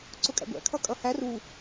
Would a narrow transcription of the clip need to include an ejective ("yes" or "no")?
yes